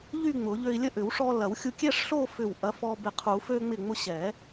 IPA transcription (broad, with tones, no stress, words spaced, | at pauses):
ʎy˥˧ŋ͡mʊ˨˩˦ʎø˧i̯lʲə˥˧ ʔʏ˨˩˦wʂɔ˧lɐ˨˩˦w xʲu˧kʲɛ˥˧ʂɬo˥˧ fʏ˧˩w ʔɐ˨˥fɔ˧ bɪ˧˩qʰu˨˩˦ fø˧ŋ͡mɪ˧˩ ŋ͡mʊ˧ ɕɛ˨˩˦